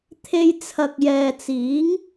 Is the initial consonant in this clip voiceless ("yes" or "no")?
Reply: yes